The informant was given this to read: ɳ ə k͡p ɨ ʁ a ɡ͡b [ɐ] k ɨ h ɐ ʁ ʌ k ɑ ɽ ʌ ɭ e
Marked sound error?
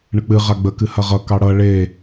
yes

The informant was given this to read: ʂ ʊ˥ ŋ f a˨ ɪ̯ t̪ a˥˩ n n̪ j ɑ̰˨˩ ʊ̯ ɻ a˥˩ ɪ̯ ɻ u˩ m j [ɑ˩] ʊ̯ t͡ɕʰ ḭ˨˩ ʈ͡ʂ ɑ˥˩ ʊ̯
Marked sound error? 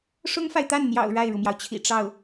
no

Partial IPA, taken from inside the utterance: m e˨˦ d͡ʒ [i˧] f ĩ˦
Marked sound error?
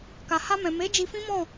no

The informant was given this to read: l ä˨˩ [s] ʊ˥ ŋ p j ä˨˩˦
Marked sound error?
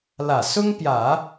no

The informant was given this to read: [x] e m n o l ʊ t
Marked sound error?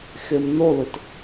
no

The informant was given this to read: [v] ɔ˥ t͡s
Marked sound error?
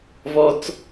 no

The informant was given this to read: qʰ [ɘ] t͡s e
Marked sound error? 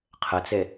no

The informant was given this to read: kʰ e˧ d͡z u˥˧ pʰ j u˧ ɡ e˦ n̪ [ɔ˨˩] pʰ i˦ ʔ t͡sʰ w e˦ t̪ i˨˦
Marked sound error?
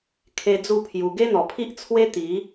no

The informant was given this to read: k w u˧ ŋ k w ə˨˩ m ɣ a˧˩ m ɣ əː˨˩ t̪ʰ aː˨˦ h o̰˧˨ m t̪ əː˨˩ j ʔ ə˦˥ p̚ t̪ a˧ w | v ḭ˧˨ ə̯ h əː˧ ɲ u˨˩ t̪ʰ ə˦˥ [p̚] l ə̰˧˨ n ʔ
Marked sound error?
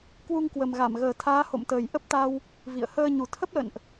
no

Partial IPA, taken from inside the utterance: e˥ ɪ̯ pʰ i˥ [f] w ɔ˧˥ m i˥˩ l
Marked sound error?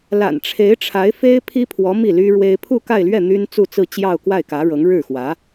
yes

